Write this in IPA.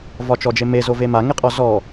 v ɒ t͡ʃ ɔ d͡ʒ e m e z o v e m a ŋ e qʼ ɔ z ɔ

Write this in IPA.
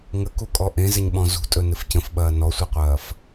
ŋ ə k u kʼ ɔ ʔ ẽ z ɪ ɲ ɓ ɔ̃ z ṳ tʼ ɵ n ɪ f c ə̃ f ɓ ɐː n ɔ sʷ i qʷ ɐː f

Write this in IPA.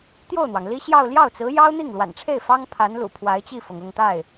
t̪ j o˥˩ ʊ̯ n̪ w ɑ˩ ŋ l i˥ ɕ j ɑ˥˧ ʊ̯ l j ɑ˥˩ ʊ̯ t͡s ɹ̩˧˥ j ɑ˥ ʊ̯ n̪ i˥˩ ŋ l w a̰˨˩ n ʈ͡ʂʰ e˥˩ ɪ̯ f ɑ˥ ŋ pʰ a˧˥ n l ṵ˨˩ pʰ w a˧˥ ɪ̯ t͡ɕ i˥˩ f ɤ˩ ŋ ʊ˥˧ ŋ t̪ a˥˩ ɪ̯

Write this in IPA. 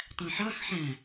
tˤ æ̃ ħ ɑ x ħ æ̃

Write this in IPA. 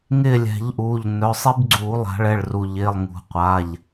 ŋ ɪː˦˨ lʲ ɛ̤˨˩˦ ʎ ʔ uː˩˧˩ ʎ n œ˩˧˩ sˤ i˦ b ɡ͡ǀ uː˨˩˦ lˠ a̤˨˩˦ ɭ ɛ˩˧˩ ɭ r u˩ ʎ ɪː˩˧˩ lˠ ŋ ṳ˨˩˦ qʷ aː˩˧˩ ʎ

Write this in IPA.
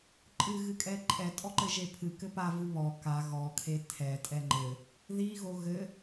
ǃʼ ɨ ɣ ɨ kʼ ɛ ǃʼ ɛ tʼ ɔ ǃ ɘ ʒ e pʰ ɨ k ɘ p a v ɨ β ɔ k a ɣ ɔ kʰ e tʰ ɛ tʼ ɛ ŋ͡ǃ ɘ | ð i ɣ o ɣ ɘ

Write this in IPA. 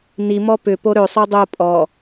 n i m ɔ p ʏ p o ɾ ø sˤ o dˤ o pʼ ɔ

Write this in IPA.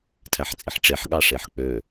tʰ æ ħ t͡sʼ i ħ ʈ͡ʂ e ħ ɠ ɑ ʂ e ħ k͡p ø

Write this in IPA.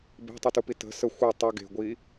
b e̤ tˤ i t u p i t ə̤ s ə xʷ ɯ tˤ ə ɡ e̤ ɡʷ i

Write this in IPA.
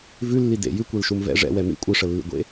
v ʉ lː i d ḛ j ʉ kʷ e l ʃ u m v ɛ̰ ʐ ɛ̰ w ɛ m ḭ kʷʼ ɨ ʂ ə lː ḭ ɡʷ ḛ

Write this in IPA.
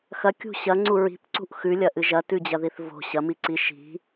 x ɐ kʲ ṳ ɕ ɐ ŋ͡ǀ u ɹ i̤ p ǀ ṳ ʔ x ʉ lʲ ɐ ʔ ɨ ʒ ɐ t ʉ d͡ʑ ɐ ð i θ v o̤ ɕ ɐ m i ǀ i ʃ i̤

